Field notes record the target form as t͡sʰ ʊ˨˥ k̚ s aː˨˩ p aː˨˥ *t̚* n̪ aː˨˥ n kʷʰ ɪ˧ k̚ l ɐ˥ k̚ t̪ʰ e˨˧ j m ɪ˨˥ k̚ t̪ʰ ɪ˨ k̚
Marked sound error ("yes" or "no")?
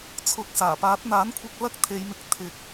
no